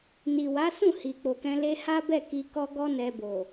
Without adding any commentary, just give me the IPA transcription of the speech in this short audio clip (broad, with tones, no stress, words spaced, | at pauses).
ni˨wa˨˦sũ˦˨ hi˨k͡po˨kɛ̃˧ le˧ ha˦bɛ˦˨ki˧ kɔ˦ ɡɔ˦nɛ˧ bo˨